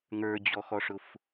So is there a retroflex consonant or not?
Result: yes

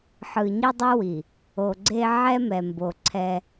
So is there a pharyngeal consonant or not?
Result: yes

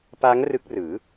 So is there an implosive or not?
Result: no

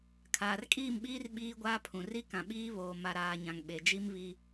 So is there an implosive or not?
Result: yes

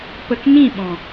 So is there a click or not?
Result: no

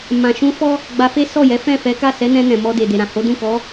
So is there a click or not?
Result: no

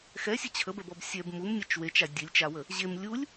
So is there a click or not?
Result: no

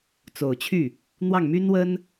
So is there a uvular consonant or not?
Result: no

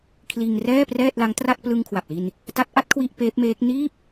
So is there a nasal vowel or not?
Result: no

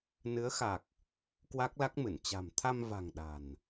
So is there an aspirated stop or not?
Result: yes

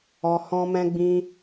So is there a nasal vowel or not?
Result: yes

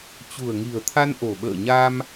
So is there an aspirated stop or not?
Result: yes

